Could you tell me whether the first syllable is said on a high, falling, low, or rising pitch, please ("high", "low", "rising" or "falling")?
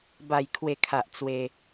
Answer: low